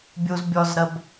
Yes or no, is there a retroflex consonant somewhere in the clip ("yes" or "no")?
no